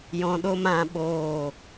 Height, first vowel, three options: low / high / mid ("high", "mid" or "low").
mid